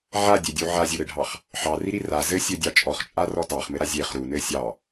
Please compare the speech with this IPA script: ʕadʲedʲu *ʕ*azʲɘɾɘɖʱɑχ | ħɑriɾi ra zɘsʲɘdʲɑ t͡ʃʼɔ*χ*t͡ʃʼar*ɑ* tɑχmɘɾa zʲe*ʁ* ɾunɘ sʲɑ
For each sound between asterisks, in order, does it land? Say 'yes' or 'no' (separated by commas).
yes, yes, no, no